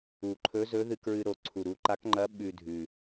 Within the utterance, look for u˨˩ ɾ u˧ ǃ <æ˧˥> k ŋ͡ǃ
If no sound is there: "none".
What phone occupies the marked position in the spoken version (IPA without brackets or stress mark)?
a˧˥